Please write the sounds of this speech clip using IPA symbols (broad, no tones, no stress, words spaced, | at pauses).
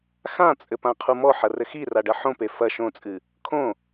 xãt͡sʼɘ pãqʰumɔħɐ rɘxira ɖɐħõpe fɐ ʃõt͡sʼɨ | kʰõ